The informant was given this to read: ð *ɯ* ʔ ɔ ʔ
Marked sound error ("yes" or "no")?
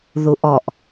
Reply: yes